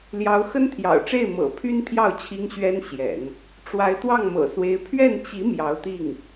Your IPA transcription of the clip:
l j ɑ˧˥ ʊ̯ x ə˥ n t̪ʰ j ɑ̰˨˩ ʊ̯ ʈ͡ʂ e˥˩ ɪ̯ m ɤ̰˨˩ pʰ y˥ n pʰ j ɑ˥˩ ʊ̯ t͡ɕʰ i˥ ŋ ɕ ɥ ɛ˥ n ɕ j ɛ̰˨˩˦ n | ʈ͡ʂ w a˧˥ ɪ̯ t̪ w ɑ˥˩ ŋ m ɤ̰˨˩ s w e˧˥ ɪ̯ pʰ ɥ ɛ˥˩ n t͡ɕ i˧˥ m j ɑ˧˥ ʊ̯ t̪ i˥˩ ŋ

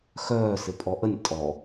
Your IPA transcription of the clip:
x œː s ɪ pʼ ɔ ʔ ə nʲ tʼ ɔ

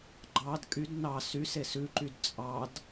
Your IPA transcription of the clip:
ɡ͡ǃ ɑ d kʼ y d n ɑ s y s e s ʉ ǃ y d t͡sʼ ɑ d

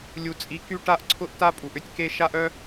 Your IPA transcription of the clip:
lʲ u˨ t͡sʼ i˨˦ k y˦ ʈ a˦ ʔ ǀʰ ʊ˦ ʔ t a˦ pʼ u˨ ʔ ʏ˦ tʲ k e˦ ʃ a˦ ʔ œ˦

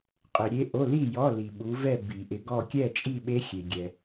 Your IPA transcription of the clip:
qʼ ɪ˨ ɾʲ e˦˥ ʔ o˧˥˧ l i˥˨ j ɔ˧˥˧ l i˨ ɓ u˨˥ v ɛ˥˨ b i˨˩˦ ʔ ɪ˨˥ ɡ ɔ˥˨ kʲ ɛ˥˨ t͡ʃʼ i˥˨ ɓ e˦˥ xʲ e˨ ɡʲ ɛ˨

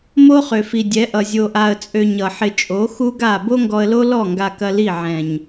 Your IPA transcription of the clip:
m o˦ χ ø˨ f i˨ dʲ ɛ˨˦ ʔ ʌ˨ zʲ o˧ ʔ a˧ ə̯ t͡sʼ ø˧ ɲ ʌ˨ ħ ɪ˧ t͡ʃʼ o˨˦ x u˦ ɡ a˦˨ b o˦ ŋ ɡ ɔ˧ ə̯ l o˦ l ɔ˦˨ ŋ ɡ a˧ k ɐ˧ l i˦˨ ʕ ɛ̃˨ ɲ

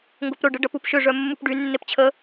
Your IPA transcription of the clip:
ŋ ɡ o p ɾ ʊ ɖ ə ɖ ɐ p u p ʃ ʏ ʐ œ mː u p ɖ y nː e p t͡ɕʰ ə

